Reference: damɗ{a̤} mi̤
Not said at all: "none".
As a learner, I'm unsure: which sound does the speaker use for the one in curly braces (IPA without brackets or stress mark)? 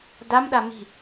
a